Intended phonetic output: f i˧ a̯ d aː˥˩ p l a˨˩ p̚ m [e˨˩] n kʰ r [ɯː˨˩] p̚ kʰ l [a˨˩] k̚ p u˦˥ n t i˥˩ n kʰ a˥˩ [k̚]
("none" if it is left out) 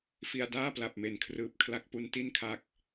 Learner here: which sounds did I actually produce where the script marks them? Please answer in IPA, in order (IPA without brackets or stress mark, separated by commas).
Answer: e˨˩, ɯː˨˩, a˦˥, k̚